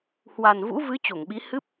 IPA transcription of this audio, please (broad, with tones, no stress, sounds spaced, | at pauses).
h w a˨˩ n v ṵ˧˥ v ɨ˨˦ t͡ɕ o˧˩ ŋ ɓ i˨˦ h ɨ˦˥ p̚